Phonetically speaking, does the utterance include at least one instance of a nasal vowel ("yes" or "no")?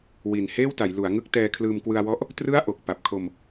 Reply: no